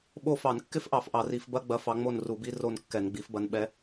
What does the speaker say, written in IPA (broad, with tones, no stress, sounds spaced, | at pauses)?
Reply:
ɓ o˦˨ f ɑ˧˩˧ n kː ɪ˥ f ʔ ɑ˧˩˧ f ʔ ɑ˧˩˧ r i˧˩˧ f b ɐ˧˥˧ ɡ͡b ɐ˨˦ f ɑ˨˦ ŋ͡m o˦˨ n r u˧˩˧ b i˧˥˧ r o˦˨ n kː ɛ˧˩˧ n ɡ͡b i˨˦ f b ɐ˨˦ n ɓ ɛ˨˦